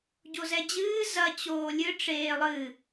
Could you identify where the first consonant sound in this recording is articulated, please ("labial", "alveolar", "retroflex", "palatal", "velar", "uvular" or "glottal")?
palatal